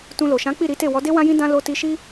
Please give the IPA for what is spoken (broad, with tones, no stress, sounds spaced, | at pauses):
t ũ˧ l o˨ ʃ ã˨˦ k͡p i˦˨ ɾ i˨˦ t e˦˨ w ɔ˨˦ d e˦ w ã˦ j ĩ˦ d ã˦ l o˧ t i˧ ʃ i˦